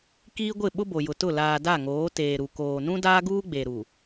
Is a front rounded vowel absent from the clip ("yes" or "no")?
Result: yes